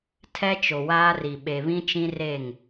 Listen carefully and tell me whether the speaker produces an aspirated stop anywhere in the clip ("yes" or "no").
yes